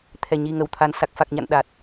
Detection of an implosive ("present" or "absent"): present